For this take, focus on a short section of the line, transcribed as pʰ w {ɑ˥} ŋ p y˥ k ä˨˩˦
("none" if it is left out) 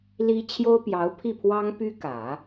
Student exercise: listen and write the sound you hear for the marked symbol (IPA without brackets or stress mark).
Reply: ɑ˥